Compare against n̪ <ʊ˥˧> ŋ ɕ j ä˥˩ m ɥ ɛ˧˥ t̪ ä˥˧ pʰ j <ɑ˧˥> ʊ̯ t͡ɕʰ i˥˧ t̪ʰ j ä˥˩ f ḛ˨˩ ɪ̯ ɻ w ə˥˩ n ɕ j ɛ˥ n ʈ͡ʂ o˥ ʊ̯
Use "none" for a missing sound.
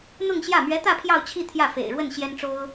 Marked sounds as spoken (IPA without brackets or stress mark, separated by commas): ʊ˥˧, ɑ˥˧